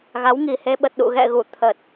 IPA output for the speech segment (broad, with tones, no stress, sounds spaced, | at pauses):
ɣ a˨˦ w ŋ i˨˩ h e˧ ɓ ə˨˩ t̚ ɗ ṵ˧˨ ɣ ɛ̰˧˨ ɣ u˧˩ t̪ʰ ə˨˩ t̚